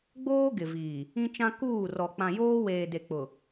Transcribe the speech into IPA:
ɡ͡boː˦ ɡɪ˨viː˨ | ĩ˦t͡ʃã˦ kuː˦˨ rɔ˨ k͡pã˨joː˦weː˨de˨ k͡pʊ˨

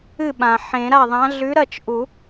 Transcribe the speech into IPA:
ɨ˥˩ɓã˩ ħẽ˨˩˦ɾa˥˩ðˤã˨˥ ɮʉ˨˥ɾɐ˥˩t͡ʃ ʔu˨˩˦

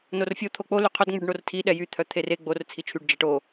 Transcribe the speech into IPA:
norfʲo t̪ʰok͡po lyqʰœdŋ͡mʉɖ ɳortʰiɗɛ jyt̪ʰœ t̪ʰere ɡ͡bor t͡sʰit͡ʃʰyɖ d͡ʒɛʈo

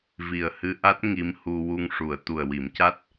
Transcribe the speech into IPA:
vi˨˩ə̯hɨ˧ʔa˦˥t̚ ŋi˧˥mhu˧ wu˧ŋʂu˨˩˨ə̯ t̪u˨˩ə̯ wi˨˩˦mca˦˥t̚

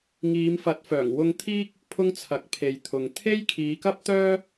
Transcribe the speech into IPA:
ŋiː˨˧mfɐ˨˥t̚fœː˨˩ŋ wʊ˧ŋt̪ʰiː˥k̚ | pʰʊ˥ŋt͡sʰɐ˨˥k̚pʰe˨jt̪ʰʊ˨ŋ t̪ʰe˥jkʰiː˨˧kɐ˥p̚t̪œː˥

